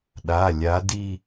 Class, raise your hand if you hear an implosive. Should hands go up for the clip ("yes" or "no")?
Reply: yes